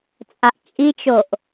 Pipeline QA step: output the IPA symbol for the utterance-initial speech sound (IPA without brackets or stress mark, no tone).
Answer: t͡sʼ